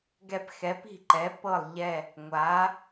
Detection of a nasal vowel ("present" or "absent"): absent